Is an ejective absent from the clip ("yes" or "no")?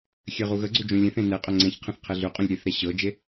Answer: no